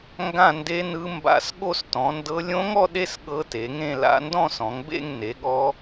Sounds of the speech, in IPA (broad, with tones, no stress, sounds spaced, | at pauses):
ŋ ɡ ã˥˧ n d e˦˥ n ɯ˦˥ m b a̰˥˧ s ɠ o˥˧ s t ɔ̃˨˦ n d ɤ˦˥ lʲ õ˦˥ ŋ ɔ˥˧ ɗ e˥˧ s ɠ ɤ˦˥ t e˨˦ ŋ ẽ˥˧ l a̰˦˥ n d ɔ̃˥˧ s ɔ̃˨˦ ŋ b ḛ˥˧ ŋ n e˨˦ ɠ ɔ˦˥